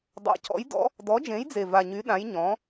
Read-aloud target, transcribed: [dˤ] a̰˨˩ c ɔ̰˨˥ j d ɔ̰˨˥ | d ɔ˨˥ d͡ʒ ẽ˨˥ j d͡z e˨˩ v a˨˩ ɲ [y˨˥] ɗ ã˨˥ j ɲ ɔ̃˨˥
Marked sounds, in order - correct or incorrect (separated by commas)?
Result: correct, correct